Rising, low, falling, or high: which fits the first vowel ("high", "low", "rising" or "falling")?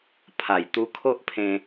low